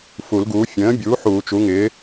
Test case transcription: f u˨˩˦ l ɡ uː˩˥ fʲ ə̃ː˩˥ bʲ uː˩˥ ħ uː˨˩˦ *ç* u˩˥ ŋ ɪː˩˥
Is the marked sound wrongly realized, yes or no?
yes